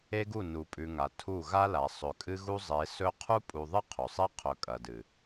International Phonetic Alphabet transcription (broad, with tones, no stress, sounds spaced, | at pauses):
e˦ ɡ u˦˨ n u˨ pʼ ʉ˨ ŋ a˨ tʰ u˦˨ ɣ a˦ l a˨ sˤ ɵ˨ kʼ ɨ˦ ɣ u˦ zˤ e˨˦ s ɵ˦ qʰ u˦ pʼ u˨ ðˤ ɨ˦ qʰ ɵ˨ sˤ e˦ qʰ ɵ˨ kʼ ɐ˨ d ɨ˨